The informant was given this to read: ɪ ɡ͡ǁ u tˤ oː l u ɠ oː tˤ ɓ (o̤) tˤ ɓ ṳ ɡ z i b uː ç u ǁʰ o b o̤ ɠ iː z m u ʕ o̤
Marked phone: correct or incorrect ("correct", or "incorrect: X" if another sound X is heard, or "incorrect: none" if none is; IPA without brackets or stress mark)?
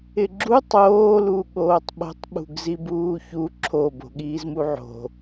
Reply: correct